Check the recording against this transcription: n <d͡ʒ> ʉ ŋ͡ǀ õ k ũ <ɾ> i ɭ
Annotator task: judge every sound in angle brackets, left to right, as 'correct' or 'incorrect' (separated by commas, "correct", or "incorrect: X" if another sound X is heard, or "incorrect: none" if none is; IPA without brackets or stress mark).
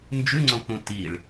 correct, incorrect: t